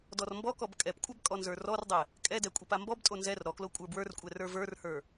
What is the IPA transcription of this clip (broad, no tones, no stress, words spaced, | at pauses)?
dɔrmbɔkɔb kʼɛpkʷʼab kʼɔnzə˞rɔrdˤɛ | kʼɛdɛ kʷʼɛpambɔbtʼo nzɛr ɾɔklo kʷʼə˞bwə˞rkʷʼɛ rə˞və˞rhə˞